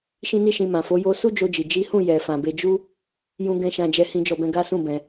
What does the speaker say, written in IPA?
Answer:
ʃ ĩ˦ n i˦ ʃ ĩ˧ m ã˨ f o˨˦ j o˧ s u˦ d͡ʒ o˧ d͡ʒ i˨ d͡ʒ i˨˦ h ũ˦˨ j ɛ˨ f ã˨ b e˧ d͡ʒ u˧ | j ũ˦ ɡ ɛ̃˦ ʃ ã˦ d͡ʒ ɛ˦ h ĩ˦ d͡ʒ ɔ˦˨ b ɛ̃˧ ɡ a˦ s ũ˦˨ b ɛ̃˧

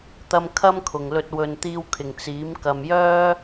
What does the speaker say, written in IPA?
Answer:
t̪ ɐ˧ m kʰ ɐ˥ m kʰ ʊ˨˩ ŋ l ɵ˧ t̚ w ɵ˨ n t̪ iː˧ w kʰ ɪ˨˩ ŋ t͡s iː˨˥ m k ɐ˨ m j œː˥

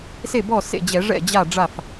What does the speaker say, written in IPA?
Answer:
s e˥˩ b ɔ˥˩ s ḛ˥˩ d͡ʑ ɛ˧˩˧ ʐ ɛ̰˥˩ d͡ʑ a˥˩ ɖ͡ʐ a˥˩ f

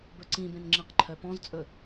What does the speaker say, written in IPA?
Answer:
b ɵ ǀ ĩ b ẽ n ŋ͡ǁ ĩ q ǃʰ œ p ɔ̃ z t͡sʼ ɵ

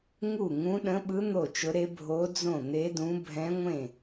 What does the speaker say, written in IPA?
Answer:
ŋ u˥˩ ŋ ũ˧˥ ɗ ə̃˧˥ ɓ ɯ˧˥ n̪ o˥˩ t͡ʃ ʊ˧˥ ɾ e˧˥ bʱ o˧˥ d͡z õ˥˩ n̪ e˧˥ d ũ˧˥ bʱ ɛ̃˧˥ ŋʷ ẽ˥˩

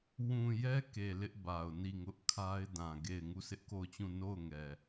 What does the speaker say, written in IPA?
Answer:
w ũ˨ j ɛ˦ k e˨ l ɪ˦ ʔ b a˨ ʊ̯ n i˦˨ ŋ ʊ˦ ʔ kʰ a˦ ɪ̯ d ã˨ ɡ e˦˨ ɪ̯ ŋ u˦˨ s ɪ˦ ʔ k o˦˨ ʊ̯ t͡ɕ ũ˦˨ n o˦˨ ʊ̯ ŋ ɛ˨

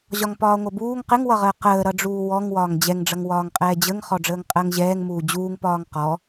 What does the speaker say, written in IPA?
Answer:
ʑ ɒ ŋ p ɒː ŋʷ ʌ b uː ŋ q ɪ ŋ w ʌ ʁ əː q əː ɾ ʌ ɖ͡ʐ uː w ɔ ŋ w ɒː ŋ d͡ʑ ɛ ŋ ɖ͡ʐ ʌ ŋ w ɒː ŋ qʼ ɛː d͡ʑ ə ŋ χ ɔ ɖ͡ʐ əː ŋ qʼ əː ŋ ʑ ɛː ŋ m uː d͡ʑ uː ŋ p ɒː ŋ q ɔ

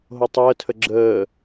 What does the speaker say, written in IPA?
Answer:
ɦ o tˤ əː tʰ ə ɡ͡ǁ əː

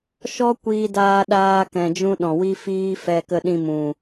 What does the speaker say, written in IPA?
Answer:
ʃ ɔ˦ kʷ iː˧ d aː˧ ɗ aː˧ k ɛ̃˨ d͡ʒ ũ˧ ɗ ɔ̃˨ w i˦ f iː˦ f ɛ˧ k ə˧ ɗ ĩ˧ m ũ˨

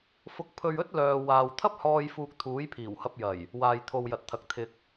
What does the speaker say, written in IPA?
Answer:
f ʊ˧ k̚ pʰ ɵ˧ ɥ ɵ˥ t̚ l œː˨ w aː˨ w t̪ʰ ɐ˥ p̚ h ɔː˧ j f uː˧ k̚ t̪ʰ uː˨˥ j pʰ iː˨˩ w h ɐ˧ p̚ j ɐ˨˩ j | w aː˨ j t̪ʰ o˨ w j ɐ˨ t̚ t̪ʰ ɐ˨ k̚ t̪ʰ ɪ˨ k̚

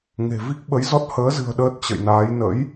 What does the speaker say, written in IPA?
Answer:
ŋ e̤˨˩ v i˦˥ k̚ ɓ ə˨˦ j z ɔ˦˥ t̚ h əː˨˦ z ɨ̤˨˩ ə̯ ɗ əː˦˥ t̚ t͡ɕ ə̰˧˨ j n aː˨˦ j n ə̰˧˥ j

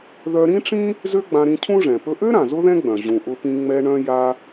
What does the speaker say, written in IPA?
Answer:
ð œ˧ ɾ ĩ˥ ʈ͡ʂ ĩ˥ | z ø˥ ɡ͡b ã˧ ɾ ĩ˧ cʰ ũ˥ ʐ ɛ̃˩ p ɵ˧ ʔ ø˥ ɾ ã˩ z ʊ˥ ð ɛ̃˥ ɡ͡b œ̃˩ ʑ ũ˩ ʔ ʊ˧ p ĩ˧ ŋ͡m ɛ˧ ɳ œ̃˧ j a˧

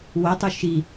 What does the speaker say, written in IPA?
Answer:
w o tˤ u ʃ i

